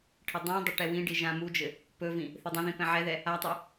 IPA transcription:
ʈʰ ɘ dˤ ɛ̃ dˤ ə ʈ ɛ w ĩ ɖ i ʒ ã m u d͡ʒ ɘ | p ɵ v ĩ | θ ɘ dˤ ə̃ ð ĩ p ɛ̃ ʕ ɛ ð ɛ | a tˤ e

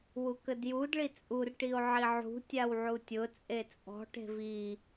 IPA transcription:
w u k ə d j u d ɭ i t͡sʼ u r ʈ i o̯ ʕ i ʕ ṳ tʲ a w ʕ u tʲ ʊ t͡sʼ e t͡sʼ ɔ̤ ʈ e̤ v i

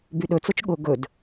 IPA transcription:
b y ɗ ɵ t͡s o t͡ʃ ɠ ʊ ɡ ɵ d

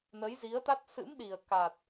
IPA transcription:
n ə˨˦ j z i˨˦ ə̯ t̪ a˦˥ t̚ s ɨ̰˧˥ m ɗ i˨˩ ə̯ k aː˨˩ t̚

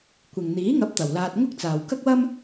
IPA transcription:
kʷ ɪ˨ ŋ n̪ iː˨˥ ŋ ɐ˨˥ p̚ t̪ ɐ˨ w l aː˧ t̚ ŋ ʊ˥ k̚ t͡s aː˨ w k ɐ˥ k̚ w ɐ˥ m

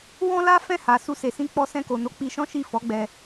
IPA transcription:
w ɔ̃˦ l a˦ f ɛ̃˦˨ h a˨ s u˧ s e˨ s ĩ˧ k͡p ɔ˧ s ɛ̃˧ k o˨ n o˨˦ k͡p i˧ ʃ ɔ̃˦ ʃ i˦˨ f ɔ˨˦ ɡ͡b ɛ˧

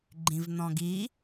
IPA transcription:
ɡ͡ǃ ĩ v n̪ ɔ̃ ɡ i

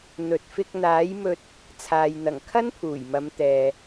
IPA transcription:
n̪ ɵ˨ t̚ f ɪ˧ k̚ n̪ aː˨˥ j m ɵ˧ t̚ | t͡sʰ aː˨ j n̪ ɐ˨˩ ŋ kʰ ɐ˥ n pʰ uː˨˩ j m ɐ˨˧ m t̪ ɛː˨

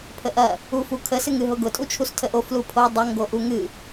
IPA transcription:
pʰ ə ʔ ɐ | u f u kʰ ə s ɨ ŋ ɨ ɦ ʊ ɡ ʊ tʼ u t͡ʃʰ u s tʰ ə ʔ o f l u pʰ o dˤ ə ŋ ɡ o ʔ u ŋ ɨ

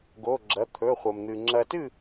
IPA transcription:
ɡ o˧˥˧ ɡ͡ǁ ɐ˧˥˧ t̪ʰ ɵ˧˥˧ χʷ ɐ˧ m n̪ ɨ˧ ŋ͡ǁ ɐ˧ t ɨ˥˧

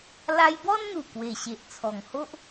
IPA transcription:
l a˧ j b ɔ˦ n n̪ u˨˩ k w e˨˩ ɕ e˨ ʔ t͡sʰ ɔ˨˩ ŋ h o˦ ʔ

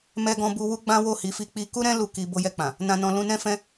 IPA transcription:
m ɛ˧ ɡ ɔ̃˧ b u˧ w u˦ ɡ͡b ã˦ w o˦˨ h i˨˦ f i˧ k͡p i˧ k u˦ ɾ ɛ̃˦ l u˦˨ k i˧ b o˧ j ɛ˧ k͡p ã˨ | n ã˨ n ɔ̃˨ l ũ˧ n ɛ̃˦ f ɛ̃˦

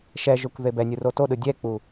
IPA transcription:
ʃ ɛ ʒ o kʷ ð e b ɛ nʲ u r o t o ɗ ɯ dʲ ɛ k͡p u

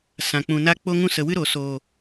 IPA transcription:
s ã˨ k͡p ũ˨ n a˦ k͡p o˦ ŋ ũ˦ s ə˨ w ɨ˦ ɾ o˨ s oː˨

